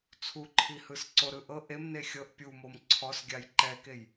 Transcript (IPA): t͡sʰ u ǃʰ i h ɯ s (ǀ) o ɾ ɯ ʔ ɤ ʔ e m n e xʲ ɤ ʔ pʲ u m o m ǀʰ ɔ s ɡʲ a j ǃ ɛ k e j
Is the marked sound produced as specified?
yes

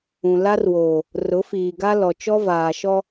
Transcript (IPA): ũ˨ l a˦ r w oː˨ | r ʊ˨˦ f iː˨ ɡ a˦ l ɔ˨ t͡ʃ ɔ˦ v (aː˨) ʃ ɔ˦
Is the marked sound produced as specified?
yes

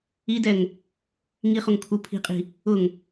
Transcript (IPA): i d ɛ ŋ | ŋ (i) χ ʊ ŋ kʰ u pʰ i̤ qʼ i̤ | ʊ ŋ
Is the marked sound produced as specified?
yes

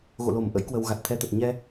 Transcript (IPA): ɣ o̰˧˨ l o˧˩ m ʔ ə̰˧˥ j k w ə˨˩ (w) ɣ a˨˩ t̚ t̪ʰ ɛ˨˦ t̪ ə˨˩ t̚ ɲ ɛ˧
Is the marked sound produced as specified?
yes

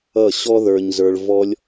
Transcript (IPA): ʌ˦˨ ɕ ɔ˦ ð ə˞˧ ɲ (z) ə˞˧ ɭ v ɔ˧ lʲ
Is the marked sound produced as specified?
yes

